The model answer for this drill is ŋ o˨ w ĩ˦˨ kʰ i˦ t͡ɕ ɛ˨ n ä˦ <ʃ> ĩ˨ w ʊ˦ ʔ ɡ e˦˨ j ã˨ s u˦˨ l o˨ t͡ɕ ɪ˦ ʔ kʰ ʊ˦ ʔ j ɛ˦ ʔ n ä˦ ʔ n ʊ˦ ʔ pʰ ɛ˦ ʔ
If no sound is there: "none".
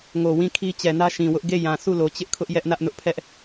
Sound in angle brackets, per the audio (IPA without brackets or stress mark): ʃ